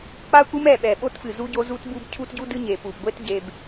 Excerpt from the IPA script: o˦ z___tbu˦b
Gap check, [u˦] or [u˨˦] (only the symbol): u˦